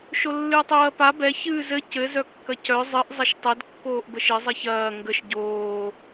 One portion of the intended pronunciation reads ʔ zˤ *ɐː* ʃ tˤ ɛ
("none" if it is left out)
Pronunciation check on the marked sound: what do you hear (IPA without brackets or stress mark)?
ɐ